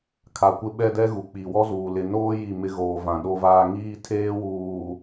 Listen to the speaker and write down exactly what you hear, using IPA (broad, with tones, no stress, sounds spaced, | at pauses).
kʰ a˨ kʷ ɪ˦ ɓ ɛ˦ d ɛ˦ ɣ u˨ k͡p i˨ w ɔ˦ z uː˨ l ɪ˨ n oː˦ j i˦˨ m ɪ˦ ɣ oː˨ v ã˨ ɗ o˦ v aː˦ ŋ iː˦ tʰ eː˦ w uː˨